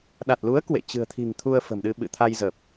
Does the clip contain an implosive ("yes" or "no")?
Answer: yes